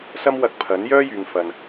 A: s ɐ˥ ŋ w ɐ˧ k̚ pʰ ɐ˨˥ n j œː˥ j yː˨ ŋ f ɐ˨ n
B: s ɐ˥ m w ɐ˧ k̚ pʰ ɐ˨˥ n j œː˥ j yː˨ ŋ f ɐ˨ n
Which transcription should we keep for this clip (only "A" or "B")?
B